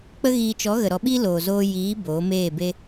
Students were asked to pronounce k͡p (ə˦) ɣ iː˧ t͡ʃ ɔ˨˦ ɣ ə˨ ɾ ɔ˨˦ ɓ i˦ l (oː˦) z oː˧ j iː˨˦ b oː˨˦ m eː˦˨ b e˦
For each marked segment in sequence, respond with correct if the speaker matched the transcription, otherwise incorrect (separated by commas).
correct, incorrect